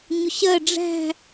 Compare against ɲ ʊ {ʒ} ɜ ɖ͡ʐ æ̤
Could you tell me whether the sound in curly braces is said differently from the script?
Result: yes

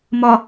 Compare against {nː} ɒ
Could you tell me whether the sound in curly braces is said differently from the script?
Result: yes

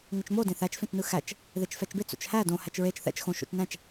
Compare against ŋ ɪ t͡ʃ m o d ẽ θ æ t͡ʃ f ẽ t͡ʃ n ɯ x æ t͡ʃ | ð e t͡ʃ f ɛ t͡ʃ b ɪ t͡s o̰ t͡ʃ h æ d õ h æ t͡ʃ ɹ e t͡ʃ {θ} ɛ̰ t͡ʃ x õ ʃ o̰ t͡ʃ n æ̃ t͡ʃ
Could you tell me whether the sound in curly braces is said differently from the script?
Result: no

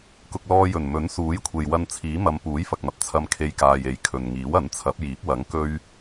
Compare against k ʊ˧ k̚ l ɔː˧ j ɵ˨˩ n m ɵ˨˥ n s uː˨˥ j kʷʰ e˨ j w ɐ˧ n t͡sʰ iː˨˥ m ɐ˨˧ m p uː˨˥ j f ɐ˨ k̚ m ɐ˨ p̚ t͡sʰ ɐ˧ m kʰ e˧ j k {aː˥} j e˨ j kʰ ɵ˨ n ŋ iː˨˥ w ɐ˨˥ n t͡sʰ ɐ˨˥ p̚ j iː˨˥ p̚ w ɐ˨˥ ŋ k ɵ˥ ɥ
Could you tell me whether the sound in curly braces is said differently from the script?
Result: yes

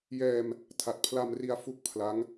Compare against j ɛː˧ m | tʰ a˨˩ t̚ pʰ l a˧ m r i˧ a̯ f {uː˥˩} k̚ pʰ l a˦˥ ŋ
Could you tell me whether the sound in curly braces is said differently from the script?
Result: yes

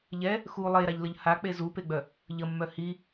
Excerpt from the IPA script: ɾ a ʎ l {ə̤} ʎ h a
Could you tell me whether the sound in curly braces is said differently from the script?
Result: yes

